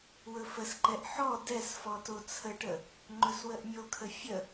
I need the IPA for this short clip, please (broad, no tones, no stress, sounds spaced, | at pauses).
w ɵ f ə s ǃ ɛ ʔ ħ ɔ d ɛ s f ɔ t o t͡sʰ ə ʈ ə | ŋ͡ǃ ɵ s w ə ʔ mʲ o kʰ ə fʲ ə